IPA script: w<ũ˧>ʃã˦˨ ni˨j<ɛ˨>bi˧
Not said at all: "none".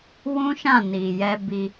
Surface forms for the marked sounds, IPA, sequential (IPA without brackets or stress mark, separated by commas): ũ˦, ɛ˧